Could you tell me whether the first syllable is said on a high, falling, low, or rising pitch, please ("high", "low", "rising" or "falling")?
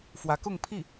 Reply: rising